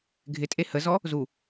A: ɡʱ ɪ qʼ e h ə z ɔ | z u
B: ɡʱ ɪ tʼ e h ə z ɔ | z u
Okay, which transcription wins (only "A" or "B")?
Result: B